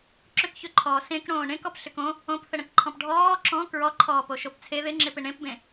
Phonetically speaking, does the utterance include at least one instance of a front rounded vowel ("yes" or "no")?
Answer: yes